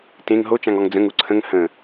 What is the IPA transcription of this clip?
tẽŋ ɦot͡ʃãŋɔŋ d͡zə̃ŋu ǀʰə̃ŋ hə̃

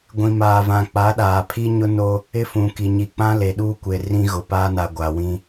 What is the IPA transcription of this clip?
ɡʷĩ˨maː˨vã˨ k͡pa˨˦ɗaː˨pʰi˦ɲʊ˦ no˦ | ɪ˦fũ˨ki˨ ɲi˨k͡pã˦ le˨ɗuː˦kʷe˨ rĩ˦ɣʊ˨paː˦na˨ ɡʷa˨wĩ˦

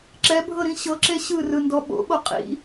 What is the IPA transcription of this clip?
ǁɛbʱɤɾĩ ɕɤǁe ɕɯrɯndɔ ɓo̰ɓo qʼḭ

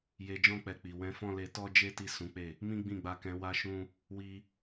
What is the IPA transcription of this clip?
je˧d͡ʒɔ̃˦k͡pɛ˧ k͡pi˨ wɛ̃˧fɔ̃˦le˧ tɔ˦d͡ʒe˦ ti˦˨ sũ˨˦k͡pe˦˨ | mĩ˦ɡ͡bĩ˦˨ɡ͡ba˧ kɛ̃˧wa˦ʃũ˦ | wi˦

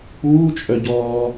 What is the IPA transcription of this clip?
k͡puːt͡ʃʼœɟɔː

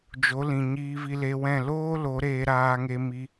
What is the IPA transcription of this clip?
d͡ʒo˨˦lĩ˨ ɲiː˧vi˧le˧wɛ̃˦˨ loː˦lo˨˦ ɾeː˧ɾaː˧ŋe˧ mi˦

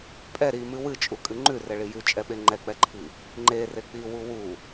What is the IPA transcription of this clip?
pʼɛ ɾimɨ wɨt͡ʃʼukʼɨ ŋ͡ǃʉrɛɭi jʉt͡ʃʼɛɓe ŋ͡ǃɛk͡pɛǃʰi | ŋ͡ǃere k͡piwu wu

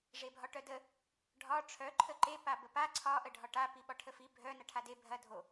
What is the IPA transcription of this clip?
ʐebʱɒʈœdə | ɖʱɒ ʈ͡ʂʰœ ǃʰəǃe pabəpa ǀʰɒ ʔəɖʱɒʈa piɓɒʈʰəfi bʱœ nɐʈʰade bʱɐ dʱo

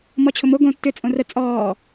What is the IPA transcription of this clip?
mɔt͡ɕʰʊmo ɡõ tːʏ t͡sʼõrə t͡sʼɔː

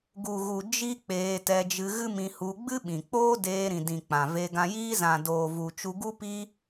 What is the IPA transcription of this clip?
ɡu˨ɣu˨ d͡ʒi˦k͡peː˧ tɛ˧d͡ʒɨ˧ɣɨ˦mĩ˧ hu˧ɡ͡bɨ˦ɓĩ˨k͡poː˦ deː˧ɾĩ˨dĩ˨ k͡pã˨ve˧ɡã˧jiː˦ zã˨doː˨vu˨ t͡ʃu˧ɡu˦ pi˦

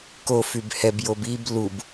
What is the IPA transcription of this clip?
ko fybhɛb jobib lub

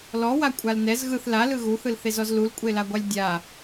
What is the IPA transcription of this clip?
lɔwa kʷʼalnɛz ɣɯθ lalɯ ɣuθɯlθezɔz lulkʷʼelaɡʷalʲ dʲa

